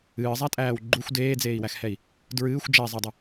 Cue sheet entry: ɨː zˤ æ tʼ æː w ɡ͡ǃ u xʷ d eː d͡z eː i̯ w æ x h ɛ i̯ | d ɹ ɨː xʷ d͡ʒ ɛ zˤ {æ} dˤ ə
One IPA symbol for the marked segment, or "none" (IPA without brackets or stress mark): ɛ